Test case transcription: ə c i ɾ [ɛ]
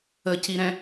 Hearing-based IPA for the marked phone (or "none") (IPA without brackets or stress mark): ɛ̃